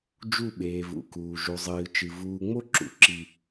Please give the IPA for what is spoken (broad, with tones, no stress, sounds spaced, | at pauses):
d͡ʒ u˦˨ ɓ eː˨ v ṵ˨ k uː˨ ʒ u˨ zˤ ɨː˨ t͡ʃ ɨ˨ v uː˨ ŋ͡m o˦ ǁ ṵ˨ ǁ i˨